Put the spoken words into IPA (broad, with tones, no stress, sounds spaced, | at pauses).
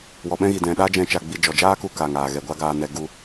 w ɔ˨ ɓ ɛ̃˦ ɣ i˨ d ɛ̃˨ ɗ a˦ d͡ʒ ɛ̃˧ t͡ʃ a˧ ɡ͡b i˧ d͡ʒ ɔ˨ d͡ʒ aː˦ k u˧ k aː˨ ŋ aː˨ ɣ ɛ˨ ɡʷ a˦ ɡ aː˧ n ɛ˧ ɡ u˧